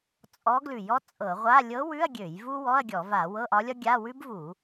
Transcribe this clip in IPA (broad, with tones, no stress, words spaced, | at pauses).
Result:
t͡sʼɔ˧˥ɡlʉ˧˩˧jɔ˧˥ t͡sʼɤ˧˩˧ʁʷa˧˥˧ lʲɤ˧˥wʉ˧˥˧ɐ̯ ɡʲø˧˩˧j vu˥ wɔ˧˥˧ɐ̯ɡʲɔ˧˩˧va˧˩˧ wɤ˧˥˧ʔɒ˧˥lʲɒ˥ɡʲa˧˥˧ wʉ˥bvu˧˩˧